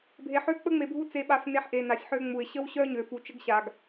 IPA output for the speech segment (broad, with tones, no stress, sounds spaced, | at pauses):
bʱ e˨ ħ ø˦ k͡p ə˦ ŋ͡m e˨ bʱ u˦ t͡s e˨ ɓ a˨ f n e˨ ħ ʔ e˨ n a˨ sʲ ħ ø˦ ŋ͡m u˨ ɪ̯ ɕ ə˦ w ɕ œ˦ ɲ ø˨ f u˨ t͡ʃ ə˦ ɡ ɕ a˨ ɡ